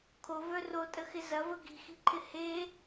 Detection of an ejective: present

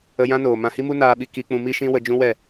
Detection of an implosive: present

